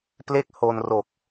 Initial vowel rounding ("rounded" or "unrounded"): unrounded